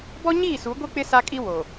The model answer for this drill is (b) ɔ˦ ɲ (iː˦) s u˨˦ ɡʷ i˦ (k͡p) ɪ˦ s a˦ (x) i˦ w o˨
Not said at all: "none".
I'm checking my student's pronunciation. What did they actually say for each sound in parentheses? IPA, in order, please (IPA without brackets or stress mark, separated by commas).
b, iː˦˨, k͡p, kʼ